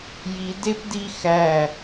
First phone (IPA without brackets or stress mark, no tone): j